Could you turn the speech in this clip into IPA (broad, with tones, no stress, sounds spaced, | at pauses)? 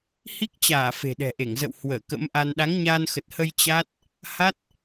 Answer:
h i˦˥ k̚ t͡ɕ aː˧˩ f e̤˨˩ ɗ ɛ̤˨˩ ʔ e˧˩ ŋ z ə̰˧˨ w h w əː˧˩ k ə̰˧˥ m ʔ a˧ n ɗ a˨˦ ŋ ɲ aː˧ n x ə˨˩ t̚ h ə˧ j t͡ɕ a˦˥ t̚ | h a˦˥ t̚